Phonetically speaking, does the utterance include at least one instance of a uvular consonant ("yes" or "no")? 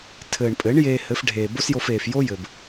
no